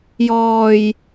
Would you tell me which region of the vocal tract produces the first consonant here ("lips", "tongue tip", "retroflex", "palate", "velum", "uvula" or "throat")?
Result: palate